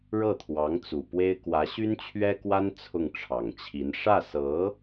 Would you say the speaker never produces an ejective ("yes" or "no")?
yes